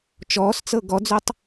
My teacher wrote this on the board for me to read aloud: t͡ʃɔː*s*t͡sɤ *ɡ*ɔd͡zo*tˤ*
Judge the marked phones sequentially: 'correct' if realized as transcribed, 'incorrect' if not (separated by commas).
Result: correct, correct, correct